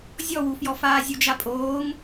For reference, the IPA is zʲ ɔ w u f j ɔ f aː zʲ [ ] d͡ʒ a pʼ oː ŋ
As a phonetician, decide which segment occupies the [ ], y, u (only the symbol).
u